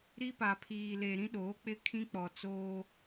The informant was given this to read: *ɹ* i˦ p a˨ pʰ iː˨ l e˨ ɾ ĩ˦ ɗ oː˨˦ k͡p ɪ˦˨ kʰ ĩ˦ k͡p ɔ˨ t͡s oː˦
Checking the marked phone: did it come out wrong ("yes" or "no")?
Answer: yes